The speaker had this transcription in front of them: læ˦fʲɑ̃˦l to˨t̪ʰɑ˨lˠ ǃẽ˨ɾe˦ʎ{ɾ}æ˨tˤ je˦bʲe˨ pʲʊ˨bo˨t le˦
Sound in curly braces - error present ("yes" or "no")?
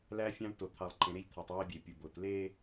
yes